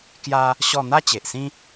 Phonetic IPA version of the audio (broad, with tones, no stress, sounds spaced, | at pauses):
k j a˦ | ɕ ɔ˥˧ n̪ a˥˧ t͡ɕ e˨ ʔ s ĩ˦